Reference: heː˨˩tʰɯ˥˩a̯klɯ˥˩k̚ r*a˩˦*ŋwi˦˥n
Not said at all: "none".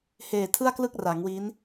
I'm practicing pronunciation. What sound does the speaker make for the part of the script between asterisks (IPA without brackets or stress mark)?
a˩˦